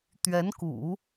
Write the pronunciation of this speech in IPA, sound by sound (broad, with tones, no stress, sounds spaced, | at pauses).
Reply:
t̪ ɥ ɛ˧˥ n k ṵ˨˩˦